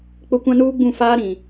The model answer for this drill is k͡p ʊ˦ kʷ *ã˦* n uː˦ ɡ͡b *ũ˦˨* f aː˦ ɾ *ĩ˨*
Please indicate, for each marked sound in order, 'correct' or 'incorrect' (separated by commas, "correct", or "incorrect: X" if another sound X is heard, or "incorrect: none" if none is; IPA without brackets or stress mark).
correct, correct, correct